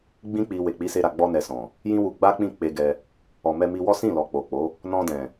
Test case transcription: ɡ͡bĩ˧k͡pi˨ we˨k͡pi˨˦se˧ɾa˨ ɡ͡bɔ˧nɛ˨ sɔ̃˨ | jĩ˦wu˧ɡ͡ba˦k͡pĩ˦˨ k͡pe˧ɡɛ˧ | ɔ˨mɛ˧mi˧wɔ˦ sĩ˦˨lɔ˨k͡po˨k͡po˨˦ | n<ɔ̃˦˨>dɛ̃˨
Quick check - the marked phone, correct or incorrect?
incorrect